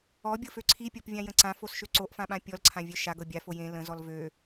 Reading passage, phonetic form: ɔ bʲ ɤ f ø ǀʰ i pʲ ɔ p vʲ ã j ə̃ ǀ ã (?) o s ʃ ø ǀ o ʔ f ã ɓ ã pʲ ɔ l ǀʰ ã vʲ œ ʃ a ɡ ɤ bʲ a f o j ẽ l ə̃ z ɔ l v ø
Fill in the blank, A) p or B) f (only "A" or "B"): B